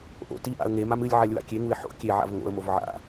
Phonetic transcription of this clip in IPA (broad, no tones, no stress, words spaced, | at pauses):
ʔo̰ tiʔa̰ə̯ ŋemam ɨlʲ ʕalʲwa̰kʲeŋuɪ̯ ħo̰ kʲeʕa̰v ŋo̰ə̯mov ʕa̰